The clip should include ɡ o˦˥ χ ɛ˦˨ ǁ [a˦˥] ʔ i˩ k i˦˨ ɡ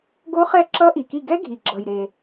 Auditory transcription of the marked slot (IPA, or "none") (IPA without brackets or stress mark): ʌ˦˥